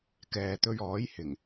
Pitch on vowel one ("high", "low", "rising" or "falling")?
low